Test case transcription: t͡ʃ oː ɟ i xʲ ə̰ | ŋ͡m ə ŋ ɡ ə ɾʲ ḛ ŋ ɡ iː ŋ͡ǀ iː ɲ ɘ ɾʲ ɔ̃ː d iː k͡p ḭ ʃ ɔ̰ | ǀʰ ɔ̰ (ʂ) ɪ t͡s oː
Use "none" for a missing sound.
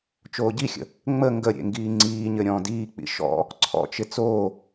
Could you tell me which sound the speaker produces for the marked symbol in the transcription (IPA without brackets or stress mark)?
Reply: t͡ʃ